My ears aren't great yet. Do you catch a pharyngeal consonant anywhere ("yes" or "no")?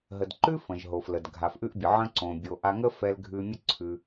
yes